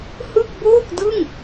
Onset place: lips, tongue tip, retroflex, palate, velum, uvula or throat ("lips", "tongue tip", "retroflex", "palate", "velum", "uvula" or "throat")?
throat